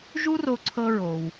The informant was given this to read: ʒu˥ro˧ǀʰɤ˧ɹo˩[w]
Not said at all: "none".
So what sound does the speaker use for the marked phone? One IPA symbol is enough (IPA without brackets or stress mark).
w